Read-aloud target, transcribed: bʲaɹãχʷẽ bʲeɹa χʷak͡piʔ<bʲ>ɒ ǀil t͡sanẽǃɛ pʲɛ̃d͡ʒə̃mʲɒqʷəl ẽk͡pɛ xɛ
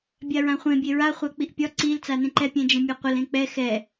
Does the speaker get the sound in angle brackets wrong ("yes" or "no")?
yes